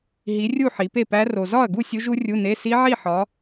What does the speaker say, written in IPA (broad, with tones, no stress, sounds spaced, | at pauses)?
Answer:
ɦ i˨˦ rʲ u˥˨ ħ i˨˦ p e˥˨ p æ˦˥ r o˨ z ɒ˥˨ ɐ̯ ɡ u˥˨ sʲ u˦˥ ʒ u˦˥ rʲ u˧˥˧ n e˧˥˧ s i˦˥ ʕ i˥˨ ħ ɒ˨˦